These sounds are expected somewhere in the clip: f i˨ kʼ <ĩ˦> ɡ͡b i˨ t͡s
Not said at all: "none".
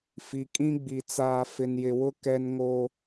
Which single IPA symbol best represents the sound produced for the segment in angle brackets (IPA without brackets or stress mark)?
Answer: ĩ˦